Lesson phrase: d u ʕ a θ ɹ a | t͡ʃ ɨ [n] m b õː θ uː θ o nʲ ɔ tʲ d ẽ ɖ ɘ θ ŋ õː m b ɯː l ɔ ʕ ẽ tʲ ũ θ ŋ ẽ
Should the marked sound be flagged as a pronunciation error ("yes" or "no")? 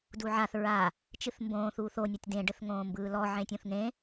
yes